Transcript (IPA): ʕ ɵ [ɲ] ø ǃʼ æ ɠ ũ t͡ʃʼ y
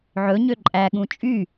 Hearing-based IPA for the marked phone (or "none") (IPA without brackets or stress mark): ɲ